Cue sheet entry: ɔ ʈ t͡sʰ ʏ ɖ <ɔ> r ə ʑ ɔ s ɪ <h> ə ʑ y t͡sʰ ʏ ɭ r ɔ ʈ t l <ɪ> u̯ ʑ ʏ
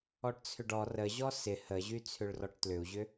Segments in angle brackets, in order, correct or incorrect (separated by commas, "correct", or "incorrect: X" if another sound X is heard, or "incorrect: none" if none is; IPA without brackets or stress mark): correct, correct, incorrect: ʏ